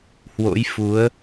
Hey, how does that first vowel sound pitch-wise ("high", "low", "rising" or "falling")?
rising